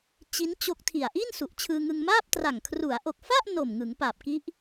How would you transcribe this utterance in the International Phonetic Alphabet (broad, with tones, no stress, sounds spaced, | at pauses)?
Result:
t͡ɕ i˦˥ n t͡ɕ o˦˥ k̚ tʰ i˨˩ a̯ ʔ i˥˩ n s u˨˩ ʔ t͡ɕʰ ɯː˧ ŋ ɯ˧ ŋ m aː˥˩ p̚ t r a˨˩ ŋ kʰ r u˩˦ a̯ ʔ o˨˩ k̚ f a˥˩ ʔ n o˨˩ m ŋ ɯ˩˦ ŋ p a˨˩ p̚ k i˦˥ ʔ